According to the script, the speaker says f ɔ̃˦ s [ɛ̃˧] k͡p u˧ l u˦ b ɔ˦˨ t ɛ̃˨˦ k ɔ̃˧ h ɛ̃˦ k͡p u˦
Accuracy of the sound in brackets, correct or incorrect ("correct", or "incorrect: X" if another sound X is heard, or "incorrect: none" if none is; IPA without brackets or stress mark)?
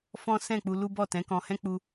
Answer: incorrect: ɛ̃˦˨